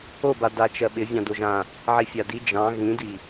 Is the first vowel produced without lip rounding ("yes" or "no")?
no